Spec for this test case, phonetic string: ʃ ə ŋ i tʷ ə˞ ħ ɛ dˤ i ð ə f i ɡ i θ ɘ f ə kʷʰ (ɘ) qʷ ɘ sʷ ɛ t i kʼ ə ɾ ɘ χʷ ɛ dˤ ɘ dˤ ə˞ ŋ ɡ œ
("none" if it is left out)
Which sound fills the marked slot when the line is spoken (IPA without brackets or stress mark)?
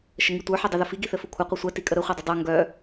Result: ɘ